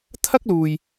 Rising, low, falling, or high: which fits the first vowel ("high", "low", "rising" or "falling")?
high